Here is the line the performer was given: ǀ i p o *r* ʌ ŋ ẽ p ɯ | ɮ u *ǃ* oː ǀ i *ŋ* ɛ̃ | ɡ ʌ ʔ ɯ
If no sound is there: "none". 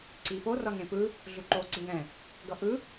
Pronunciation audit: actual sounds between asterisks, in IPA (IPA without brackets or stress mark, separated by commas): r, ǃ, ŋ